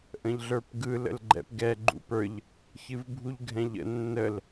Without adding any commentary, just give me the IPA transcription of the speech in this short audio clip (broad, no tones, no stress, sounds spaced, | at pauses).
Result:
ʔ ə̃ ʎ ɮ ə˞ p ɡ ɯ l ə̰ l ɡ͡ǃ ɛ̰ p ɡ ɛ ɡ͡ǃ ṵ p ə˞ ʎ | ç ɨ v bʱ u ʎ ɡʱ ɛ̃ ʎ ə̰ nː ə l